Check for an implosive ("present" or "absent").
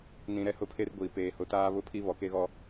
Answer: absent